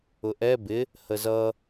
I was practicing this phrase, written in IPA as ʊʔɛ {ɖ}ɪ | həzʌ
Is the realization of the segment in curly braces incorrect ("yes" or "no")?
yes